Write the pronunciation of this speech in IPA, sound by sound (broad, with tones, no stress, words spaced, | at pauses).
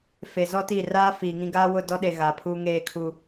fe˨zɔ˦ti˦˨ raː˦fiː˨ŋĩ˦ ɡaː˦wʊ˦˨dɔ˦ɗe˨ ɣa˨pʰuː˦ ŋeː˦˨kʰu˦